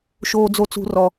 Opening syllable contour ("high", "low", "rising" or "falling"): low